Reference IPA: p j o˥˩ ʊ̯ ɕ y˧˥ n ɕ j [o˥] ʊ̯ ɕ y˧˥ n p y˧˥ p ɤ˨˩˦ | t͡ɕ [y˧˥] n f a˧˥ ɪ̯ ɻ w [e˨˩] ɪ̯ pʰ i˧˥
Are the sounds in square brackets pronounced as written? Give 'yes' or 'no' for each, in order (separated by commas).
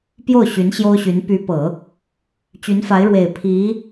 yes, yes, yes